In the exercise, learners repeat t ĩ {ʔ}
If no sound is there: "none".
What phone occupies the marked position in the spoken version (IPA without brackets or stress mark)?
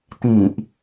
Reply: ʔ